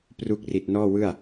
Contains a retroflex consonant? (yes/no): no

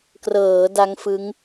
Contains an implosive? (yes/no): no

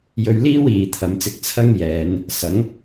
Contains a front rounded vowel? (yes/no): no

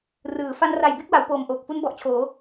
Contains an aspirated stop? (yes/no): yes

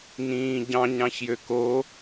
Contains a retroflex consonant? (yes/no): no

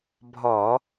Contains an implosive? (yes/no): no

